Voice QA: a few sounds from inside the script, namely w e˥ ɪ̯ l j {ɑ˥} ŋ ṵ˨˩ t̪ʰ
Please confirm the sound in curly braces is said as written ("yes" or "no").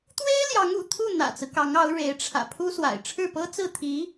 no